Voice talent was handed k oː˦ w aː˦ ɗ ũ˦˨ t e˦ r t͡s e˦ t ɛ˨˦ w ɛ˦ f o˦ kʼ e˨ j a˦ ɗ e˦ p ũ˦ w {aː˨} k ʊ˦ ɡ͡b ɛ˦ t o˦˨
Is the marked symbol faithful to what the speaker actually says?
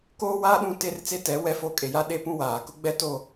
yes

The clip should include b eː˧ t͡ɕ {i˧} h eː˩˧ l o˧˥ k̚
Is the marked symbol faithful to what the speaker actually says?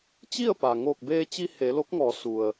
yes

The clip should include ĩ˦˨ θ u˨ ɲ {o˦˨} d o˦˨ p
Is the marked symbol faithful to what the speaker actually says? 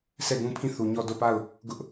no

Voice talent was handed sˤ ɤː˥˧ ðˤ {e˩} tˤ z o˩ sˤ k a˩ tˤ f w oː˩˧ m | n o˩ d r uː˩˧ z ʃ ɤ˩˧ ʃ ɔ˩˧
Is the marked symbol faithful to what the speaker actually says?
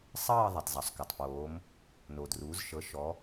yes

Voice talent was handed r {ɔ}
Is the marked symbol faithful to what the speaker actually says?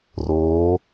no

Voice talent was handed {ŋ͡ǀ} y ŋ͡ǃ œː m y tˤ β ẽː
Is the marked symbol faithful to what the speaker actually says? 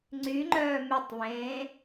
yes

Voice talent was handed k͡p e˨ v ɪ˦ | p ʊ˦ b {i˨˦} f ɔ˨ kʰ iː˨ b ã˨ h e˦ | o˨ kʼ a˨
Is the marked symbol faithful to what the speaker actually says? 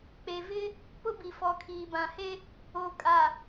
no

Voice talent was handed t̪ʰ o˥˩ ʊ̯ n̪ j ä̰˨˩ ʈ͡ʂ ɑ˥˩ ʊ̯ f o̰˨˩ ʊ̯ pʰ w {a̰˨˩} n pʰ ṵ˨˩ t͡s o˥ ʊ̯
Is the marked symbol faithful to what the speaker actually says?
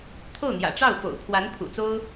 no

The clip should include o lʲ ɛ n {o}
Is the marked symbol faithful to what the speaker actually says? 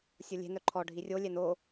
yes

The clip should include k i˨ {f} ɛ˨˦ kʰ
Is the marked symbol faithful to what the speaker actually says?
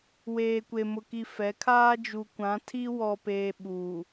yes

